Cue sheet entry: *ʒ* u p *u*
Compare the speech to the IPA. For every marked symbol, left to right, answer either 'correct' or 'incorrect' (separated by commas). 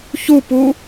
incorrect, correct